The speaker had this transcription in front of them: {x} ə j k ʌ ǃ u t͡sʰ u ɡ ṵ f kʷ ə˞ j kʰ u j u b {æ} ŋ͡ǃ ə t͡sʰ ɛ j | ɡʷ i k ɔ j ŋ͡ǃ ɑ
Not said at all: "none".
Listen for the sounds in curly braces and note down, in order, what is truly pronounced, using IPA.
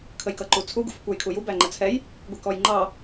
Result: kʰ, æ

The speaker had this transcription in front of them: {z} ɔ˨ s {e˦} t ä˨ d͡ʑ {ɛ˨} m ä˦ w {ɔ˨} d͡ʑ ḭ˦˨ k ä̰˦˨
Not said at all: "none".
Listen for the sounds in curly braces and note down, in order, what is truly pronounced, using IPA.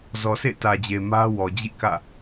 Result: z, ḛ˦˨, e˨, ɔ˨

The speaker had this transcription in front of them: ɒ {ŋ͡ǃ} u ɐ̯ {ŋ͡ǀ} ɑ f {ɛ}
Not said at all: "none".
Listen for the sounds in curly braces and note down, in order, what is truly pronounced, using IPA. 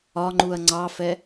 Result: ŋ͡ǃ, ŋ͡ǀ, ɛ

